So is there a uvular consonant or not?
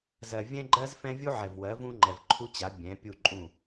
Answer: no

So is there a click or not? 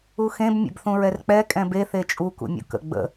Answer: no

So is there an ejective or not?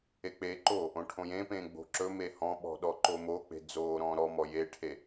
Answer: no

